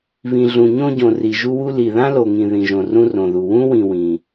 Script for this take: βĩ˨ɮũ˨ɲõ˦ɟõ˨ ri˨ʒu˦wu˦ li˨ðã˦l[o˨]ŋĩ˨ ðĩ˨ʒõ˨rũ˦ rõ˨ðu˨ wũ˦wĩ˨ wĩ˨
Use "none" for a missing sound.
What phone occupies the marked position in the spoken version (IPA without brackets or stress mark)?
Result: o˨